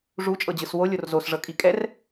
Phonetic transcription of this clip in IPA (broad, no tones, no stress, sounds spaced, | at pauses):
ʐ u t͡ʃʼ ɤ d͡ʑ ɯ s w o lʲ o r z o s ʐ ɤ kʼ i kʼ ɛ r